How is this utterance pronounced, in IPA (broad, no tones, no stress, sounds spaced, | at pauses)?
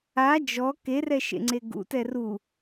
a d͡ʒ ɔ k e r ɛ ʃ ḛ ŋ͡ǀ e ɡ ṵ t ɛ r u